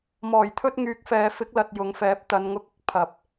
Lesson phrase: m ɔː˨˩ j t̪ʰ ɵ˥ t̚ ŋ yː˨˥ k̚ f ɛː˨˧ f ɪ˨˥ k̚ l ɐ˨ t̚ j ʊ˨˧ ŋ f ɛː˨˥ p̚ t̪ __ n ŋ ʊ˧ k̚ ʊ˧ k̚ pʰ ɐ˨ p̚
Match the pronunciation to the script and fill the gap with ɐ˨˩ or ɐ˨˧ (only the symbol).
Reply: ɐ˨˧